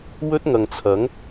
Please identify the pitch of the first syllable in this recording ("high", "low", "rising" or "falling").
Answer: high